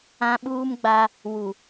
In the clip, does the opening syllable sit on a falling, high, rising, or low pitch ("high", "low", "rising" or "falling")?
high